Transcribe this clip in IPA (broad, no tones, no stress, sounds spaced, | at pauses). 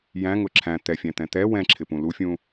j æ̃ ŋ ʊ ǁʰ æ̃ t̪ ɛ fʲ æ̃ t̪ ɛ̃ t̪ ɛ w ɛ̃ ǁʰ ɪ p ũ l u fʲ ũ